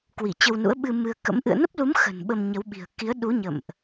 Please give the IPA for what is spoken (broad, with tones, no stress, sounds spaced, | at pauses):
k w i˧˩ t͡ɕ ə˧ w n ṵ˧˥ ə̯ ɓ ɨ˧ m ɨ˧ ə̯ k ə̰˧˥ m ʔ ɨ̰˧˨ ə̯ n ə˦˥ p̚ l u˨˦ m x ə̤˨˩ n ɓ ə˧ m ɲ ə˨˦ w ɓ i̤˨˩ ə̯ k i˨˦ ə̯ ɗ u˨˦ ɲ ə̰˧˨ m ʔ